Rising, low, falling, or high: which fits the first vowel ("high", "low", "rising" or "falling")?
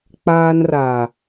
high